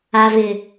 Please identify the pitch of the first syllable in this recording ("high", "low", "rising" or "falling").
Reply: low